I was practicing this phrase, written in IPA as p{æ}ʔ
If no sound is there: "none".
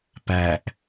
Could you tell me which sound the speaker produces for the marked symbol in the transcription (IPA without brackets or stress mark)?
æ